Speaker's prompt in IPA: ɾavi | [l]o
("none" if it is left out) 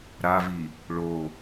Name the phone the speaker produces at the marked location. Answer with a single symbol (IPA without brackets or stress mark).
ɭ